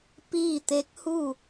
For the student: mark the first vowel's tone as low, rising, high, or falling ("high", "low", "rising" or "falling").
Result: falling